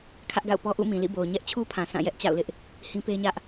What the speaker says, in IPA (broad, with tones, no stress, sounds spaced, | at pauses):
kʰ ä˦ ʔ ɡ a̰˦˨ ʊ̯ p ɔ˦ ʔ ṵ˦˨ m ĩ˨ l ḭ˦˨ b o˨ ʊ̯ ɲ ɛ˦ ʔ t͡ɕʰ u˦ pʰ ã˨ sʰ ã˦˨ j ɛ˦ ʔ t͡ɕ a̰˦˨ ʊ̯ l ɪ˦ ʔ | h ĩ˦ p e˦ ɲ ä˦ ʔ